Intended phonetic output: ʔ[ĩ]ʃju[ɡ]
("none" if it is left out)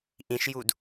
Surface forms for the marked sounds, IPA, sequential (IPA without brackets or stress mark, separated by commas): ĩ, d